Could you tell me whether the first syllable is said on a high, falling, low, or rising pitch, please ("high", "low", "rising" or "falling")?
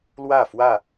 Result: falling